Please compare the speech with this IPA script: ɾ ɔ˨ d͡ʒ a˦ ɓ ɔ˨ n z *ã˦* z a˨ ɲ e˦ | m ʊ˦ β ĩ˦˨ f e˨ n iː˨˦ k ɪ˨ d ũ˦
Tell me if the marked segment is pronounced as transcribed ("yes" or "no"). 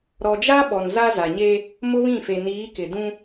no